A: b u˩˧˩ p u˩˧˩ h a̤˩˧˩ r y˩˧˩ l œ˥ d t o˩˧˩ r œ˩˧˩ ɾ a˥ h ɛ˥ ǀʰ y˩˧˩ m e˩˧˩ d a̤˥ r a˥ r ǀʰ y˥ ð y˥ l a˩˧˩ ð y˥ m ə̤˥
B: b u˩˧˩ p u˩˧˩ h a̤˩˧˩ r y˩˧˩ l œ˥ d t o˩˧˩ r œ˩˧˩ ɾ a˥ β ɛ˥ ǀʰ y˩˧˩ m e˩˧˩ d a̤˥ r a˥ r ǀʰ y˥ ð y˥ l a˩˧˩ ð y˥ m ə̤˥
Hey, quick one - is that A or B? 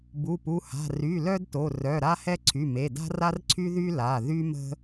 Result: A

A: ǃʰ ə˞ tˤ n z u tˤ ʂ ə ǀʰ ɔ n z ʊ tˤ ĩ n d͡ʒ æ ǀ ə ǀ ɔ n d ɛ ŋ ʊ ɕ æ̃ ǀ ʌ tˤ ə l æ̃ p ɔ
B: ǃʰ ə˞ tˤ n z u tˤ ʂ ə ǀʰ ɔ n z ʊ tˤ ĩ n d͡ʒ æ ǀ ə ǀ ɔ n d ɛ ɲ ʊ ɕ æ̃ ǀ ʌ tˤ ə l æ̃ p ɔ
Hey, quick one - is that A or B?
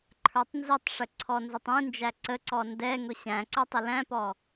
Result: A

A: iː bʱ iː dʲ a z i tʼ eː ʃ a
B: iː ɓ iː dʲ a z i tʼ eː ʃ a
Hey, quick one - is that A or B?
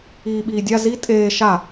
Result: B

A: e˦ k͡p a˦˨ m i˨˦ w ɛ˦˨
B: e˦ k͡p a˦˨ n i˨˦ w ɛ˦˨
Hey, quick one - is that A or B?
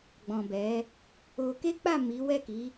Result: A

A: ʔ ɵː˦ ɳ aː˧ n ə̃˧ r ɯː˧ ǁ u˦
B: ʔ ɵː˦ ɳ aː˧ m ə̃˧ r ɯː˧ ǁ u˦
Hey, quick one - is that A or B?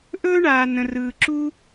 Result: A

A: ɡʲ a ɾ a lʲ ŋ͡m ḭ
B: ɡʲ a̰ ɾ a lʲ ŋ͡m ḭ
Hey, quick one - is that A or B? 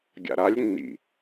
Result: B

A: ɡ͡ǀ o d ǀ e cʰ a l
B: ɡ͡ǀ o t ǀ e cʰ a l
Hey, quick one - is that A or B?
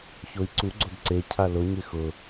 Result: A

